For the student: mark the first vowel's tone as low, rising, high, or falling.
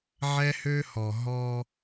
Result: high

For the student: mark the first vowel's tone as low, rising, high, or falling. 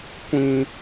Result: high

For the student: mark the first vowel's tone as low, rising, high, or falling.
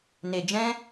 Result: low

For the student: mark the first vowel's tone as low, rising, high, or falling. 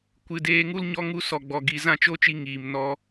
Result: low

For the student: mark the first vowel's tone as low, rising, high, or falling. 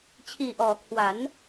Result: low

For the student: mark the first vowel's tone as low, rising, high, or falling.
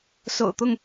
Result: low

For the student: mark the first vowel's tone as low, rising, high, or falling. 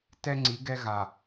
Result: high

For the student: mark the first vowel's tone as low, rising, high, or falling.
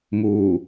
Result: low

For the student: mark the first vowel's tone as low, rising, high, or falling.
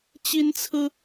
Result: high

